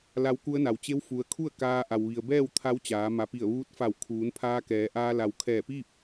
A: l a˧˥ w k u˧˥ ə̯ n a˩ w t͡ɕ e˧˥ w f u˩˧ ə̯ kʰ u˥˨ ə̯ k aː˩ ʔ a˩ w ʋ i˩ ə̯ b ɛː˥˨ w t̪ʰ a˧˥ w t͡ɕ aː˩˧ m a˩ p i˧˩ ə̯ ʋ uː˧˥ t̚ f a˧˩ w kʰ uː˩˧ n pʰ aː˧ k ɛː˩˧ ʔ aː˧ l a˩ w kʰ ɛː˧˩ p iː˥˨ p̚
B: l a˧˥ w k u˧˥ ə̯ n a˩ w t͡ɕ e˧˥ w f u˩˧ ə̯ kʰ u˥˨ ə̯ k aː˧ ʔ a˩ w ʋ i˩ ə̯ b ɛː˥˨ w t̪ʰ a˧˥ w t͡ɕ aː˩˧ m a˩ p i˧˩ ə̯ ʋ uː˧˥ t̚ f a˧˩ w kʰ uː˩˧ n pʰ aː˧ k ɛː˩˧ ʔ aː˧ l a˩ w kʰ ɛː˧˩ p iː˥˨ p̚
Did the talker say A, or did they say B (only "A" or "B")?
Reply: B